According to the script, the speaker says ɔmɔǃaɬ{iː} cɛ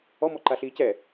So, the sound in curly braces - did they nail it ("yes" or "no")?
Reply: yes